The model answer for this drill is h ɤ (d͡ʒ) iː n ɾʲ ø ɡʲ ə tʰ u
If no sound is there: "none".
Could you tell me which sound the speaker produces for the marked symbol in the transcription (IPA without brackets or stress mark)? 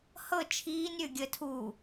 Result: t͡ʃʰ